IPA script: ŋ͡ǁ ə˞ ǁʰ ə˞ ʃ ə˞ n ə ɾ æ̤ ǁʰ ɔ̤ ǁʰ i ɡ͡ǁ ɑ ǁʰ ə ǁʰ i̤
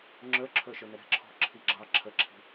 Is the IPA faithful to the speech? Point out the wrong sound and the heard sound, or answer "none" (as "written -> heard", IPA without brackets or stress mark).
none